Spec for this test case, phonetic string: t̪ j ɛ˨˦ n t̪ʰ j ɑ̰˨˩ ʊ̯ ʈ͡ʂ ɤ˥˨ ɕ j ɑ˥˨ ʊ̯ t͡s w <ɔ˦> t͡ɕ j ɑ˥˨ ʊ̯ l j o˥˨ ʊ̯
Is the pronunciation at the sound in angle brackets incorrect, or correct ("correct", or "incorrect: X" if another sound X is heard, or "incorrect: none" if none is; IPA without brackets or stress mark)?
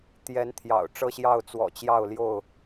incorrect: ɔ̰˨˩